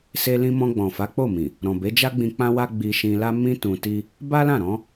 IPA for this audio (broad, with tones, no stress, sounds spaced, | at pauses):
s e˦ l ĩ˦ m ɔ̃˧ ɡ͡b ɔ̃˨ f a˨˦ k͡p o˦˨ m ĩ˨ | ɾ ɔ̃˨ b e˨˦ d͡ʒ a˦ ɡ͡b ĩ˧ k͡p ã˦ w a˦ ɡ͡b i˧ ʃ ĩ˧ l a˦ m ĩ˦ t ũ˧ t i˦ | b a˦ l ã˦˨ ɾ ɔ̃˨˦